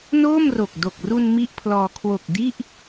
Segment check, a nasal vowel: absent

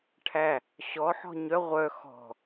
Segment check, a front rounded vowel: present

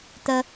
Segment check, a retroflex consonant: absent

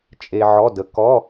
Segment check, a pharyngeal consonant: present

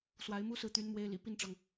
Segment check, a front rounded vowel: present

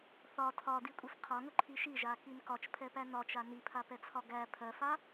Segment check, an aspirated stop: present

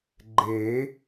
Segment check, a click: present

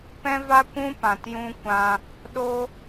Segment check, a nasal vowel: present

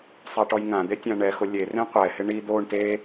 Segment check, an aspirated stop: absent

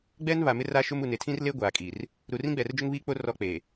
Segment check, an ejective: present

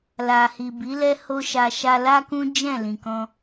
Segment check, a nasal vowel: present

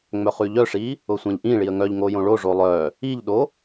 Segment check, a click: absent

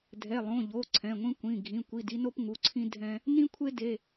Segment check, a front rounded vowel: absent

